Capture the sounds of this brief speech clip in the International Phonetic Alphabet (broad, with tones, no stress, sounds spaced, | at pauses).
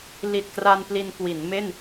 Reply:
l i˨˩ t̚ k r a˧ n p l i˧ n k w i˩˦ n m e˥˩ n